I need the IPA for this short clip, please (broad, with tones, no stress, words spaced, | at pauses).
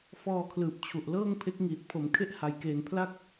fɔː˧kʰlɯː˨˩p̚t͡ɕʰu˨˩ʔ lɤː˥˩ŋpʰe˦˥k̚ ŋiː˨˩t̚pʰo˩˦mkʰe˦˥ʔ ha˧jkeː˧n pʰla˥˩k̚